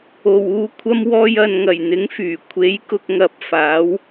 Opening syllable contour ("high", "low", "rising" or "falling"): low